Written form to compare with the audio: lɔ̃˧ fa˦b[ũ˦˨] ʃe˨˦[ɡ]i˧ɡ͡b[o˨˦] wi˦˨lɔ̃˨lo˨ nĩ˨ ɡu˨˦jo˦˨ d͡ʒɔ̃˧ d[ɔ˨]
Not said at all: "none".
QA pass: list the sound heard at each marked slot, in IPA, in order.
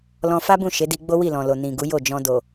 ũ˦˨, d, o˦, o˨

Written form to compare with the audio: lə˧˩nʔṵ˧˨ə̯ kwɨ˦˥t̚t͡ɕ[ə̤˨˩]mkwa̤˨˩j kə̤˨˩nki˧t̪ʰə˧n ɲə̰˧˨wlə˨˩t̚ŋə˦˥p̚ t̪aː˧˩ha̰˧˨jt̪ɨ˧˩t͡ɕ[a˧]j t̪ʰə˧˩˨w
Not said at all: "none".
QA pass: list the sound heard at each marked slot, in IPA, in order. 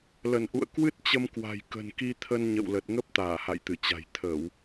ə˧, a̤˨˩

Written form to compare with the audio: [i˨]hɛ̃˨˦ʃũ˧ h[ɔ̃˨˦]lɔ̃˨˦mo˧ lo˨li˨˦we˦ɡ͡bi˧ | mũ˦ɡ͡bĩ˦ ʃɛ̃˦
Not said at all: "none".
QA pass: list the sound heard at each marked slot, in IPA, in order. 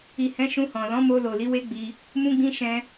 i˨, ɔ̃˨

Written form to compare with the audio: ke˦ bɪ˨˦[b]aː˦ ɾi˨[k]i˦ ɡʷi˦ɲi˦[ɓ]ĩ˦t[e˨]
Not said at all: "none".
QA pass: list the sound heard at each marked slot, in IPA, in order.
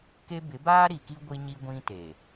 b, k, ɡʷ, e˨

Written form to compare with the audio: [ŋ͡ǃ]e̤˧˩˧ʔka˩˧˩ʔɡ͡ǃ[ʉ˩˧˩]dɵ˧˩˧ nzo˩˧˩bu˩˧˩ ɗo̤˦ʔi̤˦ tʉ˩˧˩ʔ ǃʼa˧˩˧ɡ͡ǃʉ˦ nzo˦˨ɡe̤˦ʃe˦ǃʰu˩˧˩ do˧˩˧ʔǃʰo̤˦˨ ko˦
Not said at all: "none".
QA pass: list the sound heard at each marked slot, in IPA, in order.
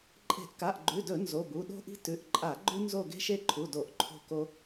ǃʼ, ʉ˩˧˩

